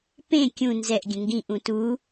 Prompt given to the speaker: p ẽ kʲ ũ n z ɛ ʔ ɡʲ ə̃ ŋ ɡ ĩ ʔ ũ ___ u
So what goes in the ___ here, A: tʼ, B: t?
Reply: B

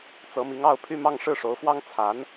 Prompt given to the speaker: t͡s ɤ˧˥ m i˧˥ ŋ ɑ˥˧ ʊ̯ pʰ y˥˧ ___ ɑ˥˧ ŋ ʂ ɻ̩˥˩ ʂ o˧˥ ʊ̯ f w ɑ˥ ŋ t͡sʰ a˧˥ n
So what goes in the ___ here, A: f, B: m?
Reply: B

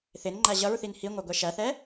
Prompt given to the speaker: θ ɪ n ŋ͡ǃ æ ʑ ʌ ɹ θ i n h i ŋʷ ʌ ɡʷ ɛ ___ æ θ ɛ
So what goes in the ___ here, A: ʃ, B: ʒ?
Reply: A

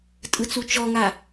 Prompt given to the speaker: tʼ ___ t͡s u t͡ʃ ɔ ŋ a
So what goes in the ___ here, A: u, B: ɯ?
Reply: B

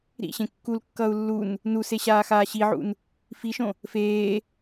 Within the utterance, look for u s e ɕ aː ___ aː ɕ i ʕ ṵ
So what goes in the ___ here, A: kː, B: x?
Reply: B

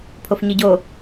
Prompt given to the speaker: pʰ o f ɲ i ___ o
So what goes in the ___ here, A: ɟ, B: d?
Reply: A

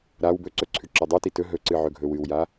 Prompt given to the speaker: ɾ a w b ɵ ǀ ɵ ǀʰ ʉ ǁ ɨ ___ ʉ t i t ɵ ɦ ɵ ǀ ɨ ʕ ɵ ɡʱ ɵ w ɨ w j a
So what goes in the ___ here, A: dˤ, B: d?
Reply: A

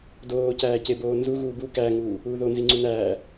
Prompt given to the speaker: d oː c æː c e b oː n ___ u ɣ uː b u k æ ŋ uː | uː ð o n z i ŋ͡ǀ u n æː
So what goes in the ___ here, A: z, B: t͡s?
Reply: A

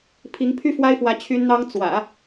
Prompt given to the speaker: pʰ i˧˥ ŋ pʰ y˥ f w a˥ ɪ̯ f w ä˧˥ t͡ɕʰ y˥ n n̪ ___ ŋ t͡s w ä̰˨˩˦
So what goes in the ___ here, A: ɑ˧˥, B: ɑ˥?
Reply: B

